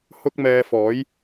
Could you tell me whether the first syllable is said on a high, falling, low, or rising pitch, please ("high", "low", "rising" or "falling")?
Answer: high